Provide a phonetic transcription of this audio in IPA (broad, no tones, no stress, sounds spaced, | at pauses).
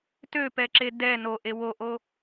t ø p ɛ ǁ e d ɛ n o ʔ e w o ʔ o